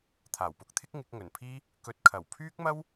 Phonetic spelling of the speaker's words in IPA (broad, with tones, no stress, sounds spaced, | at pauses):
t̪ʰ aː˨˩ w p ʊ˨˥ k̚ t̪ʰ ɪ˥ k̚ ŋ ɪ˨˥ k̚ ŋ ɵ˨˩ n pʰ iː˥ | k ɵ˧ t̚ kʰ ɐ˨˩ w pʰ yː˥ k̚ m ɐ˥ w